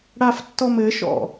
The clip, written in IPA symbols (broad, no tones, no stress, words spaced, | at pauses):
ɽaftːɔmɘʃɔ̰